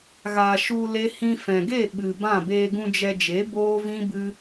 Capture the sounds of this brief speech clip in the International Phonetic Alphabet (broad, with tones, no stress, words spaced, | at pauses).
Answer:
ɣa˨ ʃu˧ le˦ hĩ˧fɛ̃˨ɡe˦˨ ɓɨ˨ bã˦˨ beː˧ɡũ˧ d͡ʒɛ˧d͡ʒe˨˦ boː˦vĩ˦bɨ˦